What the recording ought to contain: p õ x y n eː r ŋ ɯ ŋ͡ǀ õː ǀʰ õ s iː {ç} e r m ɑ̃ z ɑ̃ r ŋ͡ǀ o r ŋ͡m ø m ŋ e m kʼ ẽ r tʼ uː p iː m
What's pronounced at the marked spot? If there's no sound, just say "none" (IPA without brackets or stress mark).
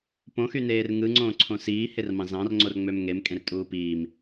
h